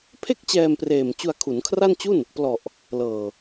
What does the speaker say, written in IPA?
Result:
pʰ e˥˩ k̚ t͡ɕ ɛː˧ m p r eː˨˩ m t͡ɕ u˧ a̯ kʰ u˩˦ n kʰ r a˥˩ n t͡ɕ u˥˩ n | p l ɔ˨˩ ʔ | l ɤː˨˩

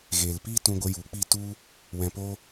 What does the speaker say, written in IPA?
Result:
ɣ eː˨ l p iː˦ t ũ˧ ɡʷ ə˧ j u˨˦ k͡p i˦˨ t u˦ | w ɛ̃˧ p o˦

